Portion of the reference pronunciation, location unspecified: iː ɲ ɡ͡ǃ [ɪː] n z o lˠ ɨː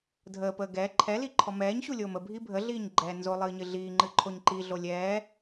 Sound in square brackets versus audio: incorrect: ɛː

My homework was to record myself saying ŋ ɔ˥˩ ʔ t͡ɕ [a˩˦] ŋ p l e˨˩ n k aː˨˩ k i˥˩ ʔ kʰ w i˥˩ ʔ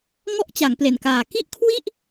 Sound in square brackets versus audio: correct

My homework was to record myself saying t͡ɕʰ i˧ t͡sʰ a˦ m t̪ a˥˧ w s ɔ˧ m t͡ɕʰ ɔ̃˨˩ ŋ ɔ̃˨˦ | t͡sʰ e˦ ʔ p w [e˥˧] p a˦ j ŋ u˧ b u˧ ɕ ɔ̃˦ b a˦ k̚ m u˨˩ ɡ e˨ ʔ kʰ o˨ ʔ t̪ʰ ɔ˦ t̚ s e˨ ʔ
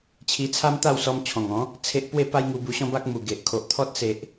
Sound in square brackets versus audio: correct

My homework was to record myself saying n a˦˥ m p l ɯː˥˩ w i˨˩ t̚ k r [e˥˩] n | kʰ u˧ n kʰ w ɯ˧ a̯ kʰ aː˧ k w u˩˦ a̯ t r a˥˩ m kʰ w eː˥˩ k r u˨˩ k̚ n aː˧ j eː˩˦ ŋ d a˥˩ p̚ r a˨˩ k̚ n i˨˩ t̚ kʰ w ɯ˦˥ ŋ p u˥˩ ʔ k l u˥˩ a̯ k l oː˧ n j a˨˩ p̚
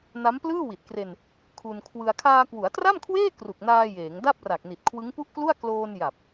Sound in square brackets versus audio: incorrect: e˧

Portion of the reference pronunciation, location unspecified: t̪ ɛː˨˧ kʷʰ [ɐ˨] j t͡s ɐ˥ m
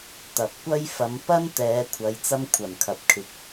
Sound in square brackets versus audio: incorrect: ɐ˨˧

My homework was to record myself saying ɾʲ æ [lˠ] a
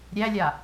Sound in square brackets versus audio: incorrect: lʲ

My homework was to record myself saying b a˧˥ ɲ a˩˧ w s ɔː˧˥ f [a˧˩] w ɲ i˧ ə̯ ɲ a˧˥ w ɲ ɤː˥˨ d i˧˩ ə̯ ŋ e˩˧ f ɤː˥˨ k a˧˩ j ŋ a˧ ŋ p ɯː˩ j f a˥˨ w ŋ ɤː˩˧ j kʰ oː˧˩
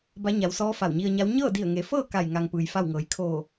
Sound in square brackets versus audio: correct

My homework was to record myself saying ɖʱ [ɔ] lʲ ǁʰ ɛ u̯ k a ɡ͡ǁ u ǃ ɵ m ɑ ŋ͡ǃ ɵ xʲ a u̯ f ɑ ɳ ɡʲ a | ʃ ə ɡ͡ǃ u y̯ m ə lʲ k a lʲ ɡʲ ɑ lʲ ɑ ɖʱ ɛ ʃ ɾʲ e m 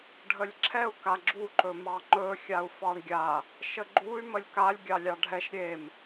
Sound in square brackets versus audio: incorrect: ə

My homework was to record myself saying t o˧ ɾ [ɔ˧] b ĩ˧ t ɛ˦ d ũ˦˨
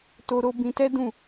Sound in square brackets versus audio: incorrect: o˧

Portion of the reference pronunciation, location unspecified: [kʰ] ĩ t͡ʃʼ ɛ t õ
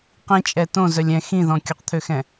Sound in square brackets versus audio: incorrect: q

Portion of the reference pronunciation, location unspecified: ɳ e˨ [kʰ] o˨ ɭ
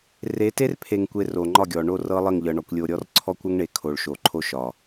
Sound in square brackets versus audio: correct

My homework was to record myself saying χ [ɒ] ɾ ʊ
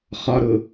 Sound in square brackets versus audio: correct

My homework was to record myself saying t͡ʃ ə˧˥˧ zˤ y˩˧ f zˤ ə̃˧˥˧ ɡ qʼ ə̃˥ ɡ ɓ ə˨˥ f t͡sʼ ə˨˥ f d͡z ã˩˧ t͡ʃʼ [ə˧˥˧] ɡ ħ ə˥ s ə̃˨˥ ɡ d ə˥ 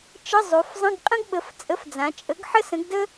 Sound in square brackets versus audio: incorrect: ə˨˥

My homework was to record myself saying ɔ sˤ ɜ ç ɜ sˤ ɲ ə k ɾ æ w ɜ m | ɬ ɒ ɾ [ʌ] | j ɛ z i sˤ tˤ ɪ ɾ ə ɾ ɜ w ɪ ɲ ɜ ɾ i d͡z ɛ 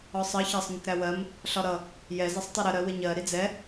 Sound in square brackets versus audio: correct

